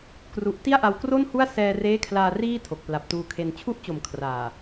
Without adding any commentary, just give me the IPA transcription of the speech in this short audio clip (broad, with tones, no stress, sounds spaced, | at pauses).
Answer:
k r u˨˩ ʔ t i˥˩ a̯ ʔ a˧ w k r o˥˩ n h u˥˩ a̯ s ɛː˧ r eː˦˥ kʰ l aː˧ r iː˥˩ tʰ o˨˩ k̚ p l a˨˩ p̚ t uː˧ kʰ e˧ n t͡ɕʰ u˦˥ ʔ t͡ɕ o˨˩ m kʰ r aː˨˩